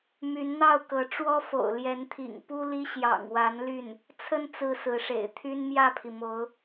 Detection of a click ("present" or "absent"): absent